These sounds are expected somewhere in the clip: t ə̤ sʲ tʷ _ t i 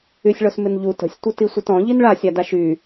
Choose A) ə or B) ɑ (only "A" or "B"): A